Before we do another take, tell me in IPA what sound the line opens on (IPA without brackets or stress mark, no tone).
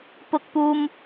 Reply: p